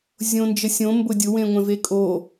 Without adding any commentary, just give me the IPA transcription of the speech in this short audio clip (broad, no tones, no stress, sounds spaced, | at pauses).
zʲ õ n d͡ʒ ə sʲ õ m b ʊ dʲ ʊ w ẽ ŋʷ ɛ̃ v e kʼ o